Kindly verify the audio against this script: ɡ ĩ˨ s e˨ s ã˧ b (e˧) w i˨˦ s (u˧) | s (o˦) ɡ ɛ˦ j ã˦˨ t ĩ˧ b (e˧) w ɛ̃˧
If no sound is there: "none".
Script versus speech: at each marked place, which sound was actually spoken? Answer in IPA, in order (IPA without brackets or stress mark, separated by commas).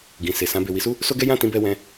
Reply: e˨, u˦, o˦, ɛ˧